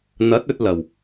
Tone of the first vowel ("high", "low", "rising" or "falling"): rising